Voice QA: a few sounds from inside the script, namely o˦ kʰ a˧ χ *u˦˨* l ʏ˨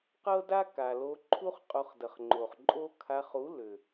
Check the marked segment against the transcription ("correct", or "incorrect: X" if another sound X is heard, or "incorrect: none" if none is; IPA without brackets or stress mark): incorrect: u˨˦